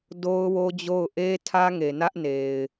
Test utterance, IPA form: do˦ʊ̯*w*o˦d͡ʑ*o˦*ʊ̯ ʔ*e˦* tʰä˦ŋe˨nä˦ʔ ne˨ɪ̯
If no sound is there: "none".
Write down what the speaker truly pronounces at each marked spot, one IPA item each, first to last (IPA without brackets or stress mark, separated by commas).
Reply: w, o˦˨, e˦